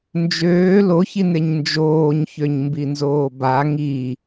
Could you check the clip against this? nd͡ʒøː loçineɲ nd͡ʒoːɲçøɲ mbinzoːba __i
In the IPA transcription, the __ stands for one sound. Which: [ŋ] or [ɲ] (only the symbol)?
ŋ